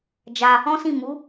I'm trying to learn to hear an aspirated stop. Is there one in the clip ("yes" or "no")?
no